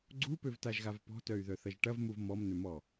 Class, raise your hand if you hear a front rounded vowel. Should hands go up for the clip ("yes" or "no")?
yes